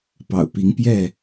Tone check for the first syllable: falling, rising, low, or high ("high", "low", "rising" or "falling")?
low